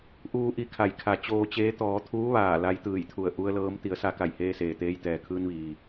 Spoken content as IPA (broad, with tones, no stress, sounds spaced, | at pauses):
ʔ uː˧ ʔ i˧ kʰ a˩˧ j kʰ a˩ t͡ɕ oː˧ t͡ɕ eː˧˥ t̪ ɔː˩˧ t̪ʰ uː˧˥ ʋ aː˧˩ l a˧˥ j t̪ ɯː˧˩ j t̪ʰ u˧˩ ə̯ ʔ u˧ ə̯ l ɤː˧˥ m t̪ i˩˧ ə̯ s a˧ k a˧˩ j h eː˧ s eː˩ t̪ eː˧ j t̪ ɛː˩ kʰ ɯː˧ n ʋ iː˩